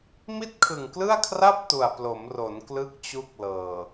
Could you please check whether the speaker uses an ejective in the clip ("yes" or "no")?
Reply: no